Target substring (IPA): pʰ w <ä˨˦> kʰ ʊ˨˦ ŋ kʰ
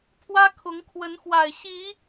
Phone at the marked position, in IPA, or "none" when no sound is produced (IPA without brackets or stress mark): ä˦